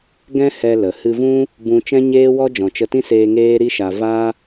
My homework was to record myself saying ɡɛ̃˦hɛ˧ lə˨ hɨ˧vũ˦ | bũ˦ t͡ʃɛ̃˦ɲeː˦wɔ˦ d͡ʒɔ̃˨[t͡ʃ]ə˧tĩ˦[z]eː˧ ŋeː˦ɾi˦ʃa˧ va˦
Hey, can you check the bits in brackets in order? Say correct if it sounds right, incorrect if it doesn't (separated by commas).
correct, incorrect